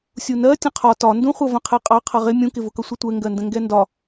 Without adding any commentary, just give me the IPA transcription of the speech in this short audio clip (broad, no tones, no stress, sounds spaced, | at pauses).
sʲ u n ɜ tʲ ə̃ qʰ ɒ t ɒ n d ũ χʷ ʌ v ə̃ qʰ ɛ qʼ ɑ qʰ ʌ ʁ ɪ mʲ ũ k ɪ v ʊ k ʌ sʷ ə tʷ ɛ ŋ ɡ ɜ n d ə̃ ŋ ɡ ɛ n d ɒ